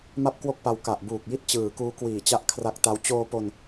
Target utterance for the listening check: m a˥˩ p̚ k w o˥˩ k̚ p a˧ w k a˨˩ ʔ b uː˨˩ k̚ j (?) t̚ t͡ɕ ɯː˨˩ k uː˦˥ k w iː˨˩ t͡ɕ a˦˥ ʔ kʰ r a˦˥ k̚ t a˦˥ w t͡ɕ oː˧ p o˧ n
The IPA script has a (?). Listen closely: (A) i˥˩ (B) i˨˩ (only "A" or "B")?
A